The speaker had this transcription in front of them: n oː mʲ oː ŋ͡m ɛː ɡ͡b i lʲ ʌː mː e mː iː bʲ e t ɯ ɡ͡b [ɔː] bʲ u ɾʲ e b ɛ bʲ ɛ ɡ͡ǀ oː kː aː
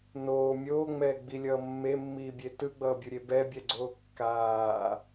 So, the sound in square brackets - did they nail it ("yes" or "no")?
no